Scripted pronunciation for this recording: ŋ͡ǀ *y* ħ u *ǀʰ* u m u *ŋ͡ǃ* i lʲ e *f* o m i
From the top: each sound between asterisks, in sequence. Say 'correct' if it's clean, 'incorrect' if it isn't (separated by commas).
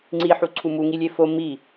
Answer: incorrect, correct, incorrect, correct